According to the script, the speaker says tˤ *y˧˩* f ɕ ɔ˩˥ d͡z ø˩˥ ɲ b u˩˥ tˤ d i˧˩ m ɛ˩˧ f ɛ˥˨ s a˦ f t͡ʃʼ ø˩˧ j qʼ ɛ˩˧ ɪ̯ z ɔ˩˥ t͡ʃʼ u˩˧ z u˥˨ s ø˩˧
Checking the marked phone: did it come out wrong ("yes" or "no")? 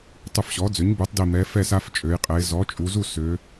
yes